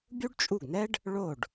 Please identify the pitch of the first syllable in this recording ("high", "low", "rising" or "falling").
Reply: high